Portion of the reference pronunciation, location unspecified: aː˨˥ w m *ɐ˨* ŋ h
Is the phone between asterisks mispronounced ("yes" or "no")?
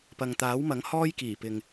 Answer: yes